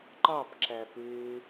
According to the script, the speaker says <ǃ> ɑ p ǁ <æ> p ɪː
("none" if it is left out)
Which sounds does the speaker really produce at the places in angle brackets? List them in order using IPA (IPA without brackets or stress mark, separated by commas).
ǃ, æ